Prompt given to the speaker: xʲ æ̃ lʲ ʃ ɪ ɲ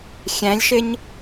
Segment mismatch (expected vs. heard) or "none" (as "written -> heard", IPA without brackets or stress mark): none